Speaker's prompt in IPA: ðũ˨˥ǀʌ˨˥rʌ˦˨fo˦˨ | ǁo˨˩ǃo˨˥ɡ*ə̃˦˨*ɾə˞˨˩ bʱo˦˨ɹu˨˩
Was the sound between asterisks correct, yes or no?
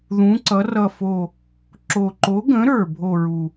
no